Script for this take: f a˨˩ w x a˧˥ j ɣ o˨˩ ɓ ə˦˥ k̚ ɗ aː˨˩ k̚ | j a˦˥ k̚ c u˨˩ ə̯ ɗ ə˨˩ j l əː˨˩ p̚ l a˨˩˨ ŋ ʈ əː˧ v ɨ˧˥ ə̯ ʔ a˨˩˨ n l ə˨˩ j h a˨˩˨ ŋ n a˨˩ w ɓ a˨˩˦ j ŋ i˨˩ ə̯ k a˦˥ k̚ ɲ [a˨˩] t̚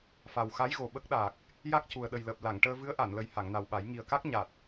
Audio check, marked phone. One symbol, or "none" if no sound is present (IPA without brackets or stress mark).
a˨˩